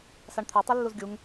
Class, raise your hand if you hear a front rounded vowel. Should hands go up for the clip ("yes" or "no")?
yes